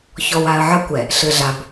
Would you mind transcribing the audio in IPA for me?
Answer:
çɔ˨wa˨ə̯ʕɐ˦kʷɛ˨ | ɬɘ˨ɮa˨b

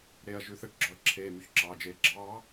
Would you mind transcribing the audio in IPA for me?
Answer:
ɾeɐ̯ ʒʉθɛʈɡ͡ǁɔɐ̯ ǁʰeːmyçǁɑːd͡ʒeː ɡ͡ǁɑː

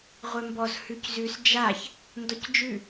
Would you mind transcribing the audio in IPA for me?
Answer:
ʁʷɛmbɔz hʉczʉs d͡ʒaç | ndɔcd͡ʒʉ

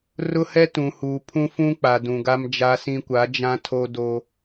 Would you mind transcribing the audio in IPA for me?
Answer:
rʊ˦hɛ˦ tũ˨huː˨ pʰũ˦fũ˦k͡pa˨ dũ˨ɡa˦md͡ʒa˦sĩ˦ kʷa˨˦d͡ʒã˦tʰo˦do˦

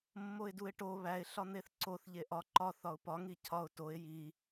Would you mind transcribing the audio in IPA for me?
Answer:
mːoɪ̯duɪ̯ʈo βæɪ̯ ɬɒn̪eθǀoθ ʎeʔɒ ǃɒ θɒʊ̯pɒ ŋicʰɒʊ̯ toɪ̯ ji

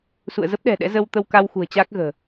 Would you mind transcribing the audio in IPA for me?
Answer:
sṵ˧˨ə̯zə˦˥p̚ɗɛ̤˨˩ ɗɛ̰˧˥ zə˧wt̪ə˧wka˧wxṳ˨˩ə̯ t͡ɕaː˦˥k̚ɣə̤ː˨˩

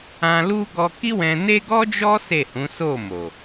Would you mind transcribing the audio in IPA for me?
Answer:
ã˧lu˦ ɡɔ˧ki˦wɛ̃˧ne˦ ɡɔ˦d͡ʒɔ˦ se˦˨hũ˨˦ so˦˨mo˨

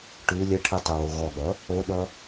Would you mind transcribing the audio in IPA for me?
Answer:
ʈʉ lʲəʈʰɨtˤowo ɣɔɠʌ | oɗʌ

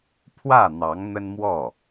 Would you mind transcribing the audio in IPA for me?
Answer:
pʰwä˥˩n̪ɑ˧˥ŋ n̪ə˥nmwɔ˥˩

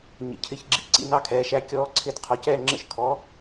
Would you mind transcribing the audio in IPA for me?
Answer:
ɲə̰˩˥cʰɪ˨˩˦çɡ͡ǁḭ˩˥ǀḭ˩˥ nɑ˥kʰɛː˩˥ʃæ˧˥ kʲɔː˧˥ǀʰɪ˧˥d qʰɒ˩˥cɛː˦˨ŋ͡ǁə̰˦˨ʃ kʰɔ˩˥

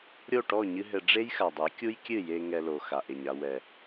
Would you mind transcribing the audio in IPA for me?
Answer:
ɾʲo˦˨ʈɔ˦˨ ɲɨ˦ɦɘ˧ ɖ͡ʐe˦jxa˨dˤɛ˨˦kʲu˦j kʲɨ˦˨je˧ ŋɛ˧lo˨ xa˨ʔe˨ɲa˧ wɛ˨

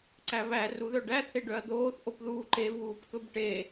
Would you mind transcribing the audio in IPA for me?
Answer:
ǀæβæ ruðœɖæ t̪ʰeɖœɐ̯d̪oːθ ʔopðuːǃe vuːpkɵbʈe

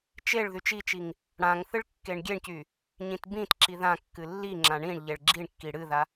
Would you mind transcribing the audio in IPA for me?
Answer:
t͡ʃeɭ ðyt͡ʃit͡ʃiŋ | ɽãŋ θɨɭkːeɳɡʲeɳcy | ɲĩtbĩtǁi ðãkːɨ lːiŋ͡ǁã ɳĩɳʎeɭ ɡ͡ǁiɳkːi ɽɨða

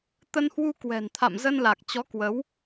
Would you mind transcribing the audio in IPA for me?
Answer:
t̪ə˧nhwu˧kwɛ̤˨˩n t̪ʰa̰˧˨mzə˧nla˨˩k̚t͡ɕɔ˨˦ kwə˨˦w

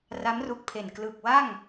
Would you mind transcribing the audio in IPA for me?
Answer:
ra˦˥mru˦˥k̚pʰe˨˩n klɯ˨˩k̚wa˥˩ŋ

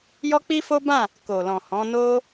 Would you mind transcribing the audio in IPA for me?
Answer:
jɔ˦k͡pi˦fo˦bã˦˨ | ko˨lɔ̃˨hɔ̃˨˦no˦

